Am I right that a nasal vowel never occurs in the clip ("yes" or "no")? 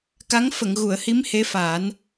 yes